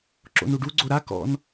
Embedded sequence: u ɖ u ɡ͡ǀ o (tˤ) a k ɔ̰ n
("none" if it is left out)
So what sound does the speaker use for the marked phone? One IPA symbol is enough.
ɾ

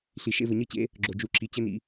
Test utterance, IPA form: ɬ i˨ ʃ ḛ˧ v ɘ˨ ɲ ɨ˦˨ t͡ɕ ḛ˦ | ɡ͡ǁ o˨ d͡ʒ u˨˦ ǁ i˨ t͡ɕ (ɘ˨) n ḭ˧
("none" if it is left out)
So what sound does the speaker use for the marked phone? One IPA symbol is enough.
ɘ˦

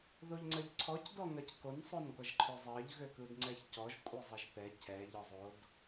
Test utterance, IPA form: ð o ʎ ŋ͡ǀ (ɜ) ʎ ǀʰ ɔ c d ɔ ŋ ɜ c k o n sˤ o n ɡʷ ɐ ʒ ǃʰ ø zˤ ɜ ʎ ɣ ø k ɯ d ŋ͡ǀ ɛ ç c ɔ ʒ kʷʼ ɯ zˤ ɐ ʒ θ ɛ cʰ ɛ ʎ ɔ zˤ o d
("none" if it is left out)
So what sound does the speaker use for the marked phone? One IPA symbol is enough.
ɜ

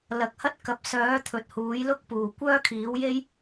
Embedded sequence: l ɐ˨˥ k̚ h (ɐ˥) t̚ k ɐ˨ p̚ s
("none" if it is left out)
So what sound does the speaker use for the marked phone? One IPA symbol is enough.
ɐ˥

